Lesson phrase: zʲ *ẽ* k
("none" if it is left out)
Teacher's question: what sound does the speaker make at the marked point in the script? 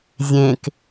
ẽ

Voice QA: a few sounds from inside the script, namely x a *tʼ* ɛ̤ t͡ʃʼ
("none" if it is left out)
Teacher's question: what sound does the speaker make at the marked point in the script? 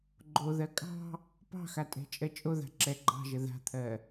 tʼ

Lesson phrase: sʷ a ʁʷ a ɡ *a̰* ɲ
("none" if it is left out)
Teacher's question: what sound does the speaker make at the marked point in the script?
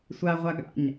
a̰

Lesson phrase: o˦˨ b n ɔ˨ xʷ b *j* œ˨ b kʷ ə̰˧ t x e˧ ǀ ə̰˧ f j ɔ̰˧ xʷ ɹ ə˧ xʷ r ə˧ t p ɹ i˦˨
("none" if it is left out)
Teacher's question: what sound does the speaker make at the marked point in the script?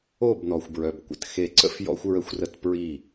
ɹ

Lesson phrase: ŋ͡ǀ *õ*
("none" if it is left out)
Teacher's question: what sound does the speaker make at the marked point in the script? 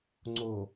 o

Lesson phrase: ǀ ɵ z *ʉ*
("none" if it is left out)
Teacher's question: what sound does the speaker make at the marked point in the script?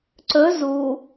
u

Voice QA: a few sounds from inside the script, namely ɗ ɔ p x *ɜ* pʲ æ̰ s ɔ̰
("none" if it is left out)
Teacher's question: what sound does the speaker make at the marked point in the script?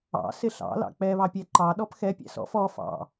ɛ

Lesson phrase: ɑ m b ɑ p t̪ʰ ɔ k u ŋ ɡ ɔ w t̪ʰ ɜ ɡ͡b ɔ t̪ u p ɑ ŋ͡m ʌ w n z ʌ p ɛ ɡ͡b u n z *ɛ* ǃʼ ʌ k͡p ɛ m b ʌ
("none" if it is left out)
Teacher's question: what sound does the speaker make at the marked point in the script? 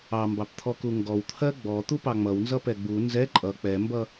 ɛ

